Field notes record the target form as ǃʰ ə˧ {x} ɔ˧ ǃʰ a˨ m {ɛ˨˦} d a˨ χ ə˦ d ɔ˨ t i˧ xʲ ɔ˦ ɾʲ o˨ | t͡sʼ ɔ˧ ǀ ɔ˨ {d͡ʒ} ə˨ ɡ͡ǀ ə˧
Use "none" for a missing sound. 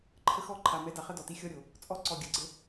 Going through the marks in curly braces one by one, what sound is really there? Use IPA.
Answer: x, ɛ˨˦, ɡʲ

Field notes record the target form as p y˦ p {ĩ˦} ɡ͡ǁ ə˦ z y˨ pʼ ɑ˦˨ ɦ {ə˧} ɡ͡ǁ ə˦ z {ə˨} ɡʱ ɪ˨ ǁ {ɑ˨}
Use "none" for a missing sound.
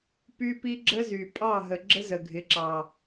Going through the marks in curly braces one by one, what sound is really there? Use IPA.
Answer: i˦, ə˨, ə˨, ɑ˨

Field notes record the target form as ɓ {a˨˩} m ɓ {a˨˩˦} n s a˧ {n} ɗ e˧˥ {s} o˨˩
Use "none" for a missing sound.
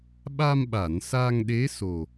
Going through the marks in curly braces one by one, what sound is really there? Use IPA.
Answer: a˧, a˨˩˨, ŋ, s

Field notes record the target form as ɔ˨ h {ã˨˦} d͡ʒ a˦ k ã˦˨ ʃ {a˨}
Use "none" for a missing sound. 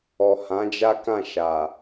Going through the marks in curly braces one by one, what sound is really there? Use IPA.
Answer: ã˨˦, a˨

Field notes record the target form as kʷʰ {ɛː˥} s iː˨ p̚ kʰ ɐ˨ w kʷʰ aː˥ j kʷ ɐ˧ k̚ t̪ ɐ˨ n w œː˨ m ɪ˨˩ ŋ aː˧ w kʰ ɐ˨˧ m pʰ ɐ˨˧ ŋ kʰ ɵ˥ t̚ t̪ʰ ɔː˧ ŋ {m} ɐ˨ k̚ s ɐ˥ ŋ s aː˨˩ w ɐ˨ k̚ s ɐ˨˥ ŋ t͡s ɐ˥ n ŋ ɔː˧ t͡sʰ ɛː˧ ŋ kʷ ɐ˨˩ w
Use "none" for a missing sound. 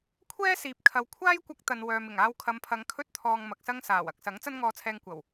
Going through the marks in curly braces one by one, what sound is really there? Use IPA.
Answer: ɛː˥, m

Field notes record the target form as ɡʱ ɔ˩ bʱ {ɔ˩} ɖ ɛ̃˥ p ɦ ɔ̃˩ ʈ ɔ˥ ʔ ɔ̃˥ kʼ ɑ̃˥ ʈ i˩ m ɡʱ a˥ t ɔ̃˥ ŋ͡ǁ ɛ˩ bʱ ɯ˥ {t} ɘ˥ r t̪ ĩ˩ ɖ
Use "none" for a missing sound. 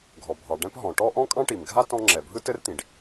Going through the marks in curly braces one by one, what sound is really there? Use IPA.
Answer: ɑ˩, t

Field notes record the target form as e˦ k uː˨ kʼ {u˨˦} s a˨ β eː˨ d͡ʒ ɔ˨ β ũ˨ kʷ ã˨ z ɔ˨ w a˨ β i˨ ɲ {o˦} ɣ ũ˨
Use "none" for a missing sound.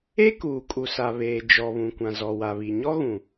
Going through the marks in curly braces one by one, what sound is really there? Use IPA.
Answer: u˨, ɔ˦

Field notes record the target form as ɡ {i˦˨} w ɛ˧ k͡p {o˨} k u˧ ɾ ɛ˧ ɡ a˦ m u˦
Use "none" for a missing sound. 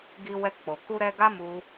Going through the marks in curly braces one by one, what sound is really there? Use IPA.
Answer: i˧, o˨

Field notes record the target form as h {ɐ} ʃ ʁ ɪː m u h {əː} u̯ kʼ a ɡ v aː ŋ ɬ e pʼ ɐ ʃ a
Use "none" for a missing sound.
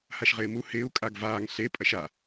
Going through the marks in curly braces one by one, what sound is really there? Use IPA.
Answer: a, ɪː

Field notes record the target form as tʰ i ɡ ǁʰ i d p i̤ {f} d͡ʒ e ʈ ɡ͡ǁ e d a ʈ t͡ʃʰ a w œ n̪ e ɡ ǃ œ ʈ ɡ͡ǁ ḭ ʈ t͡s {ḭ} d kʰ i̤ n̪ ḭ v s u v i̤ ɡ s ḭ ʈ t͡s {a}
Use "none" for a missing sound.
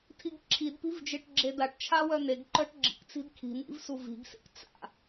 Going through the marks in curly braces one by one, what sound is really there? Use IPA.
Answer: v, i̤, a̰

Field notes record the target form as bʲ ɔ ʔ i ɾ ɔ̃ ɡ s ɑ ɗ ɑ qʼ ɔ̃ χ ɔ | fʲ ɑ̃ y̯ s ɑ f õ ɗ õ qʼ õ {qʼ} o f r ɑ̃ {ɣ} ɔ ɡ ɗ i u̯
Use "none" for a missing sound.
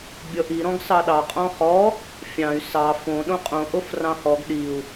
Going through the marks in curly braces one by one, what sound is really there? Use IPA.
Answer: ʔ, h

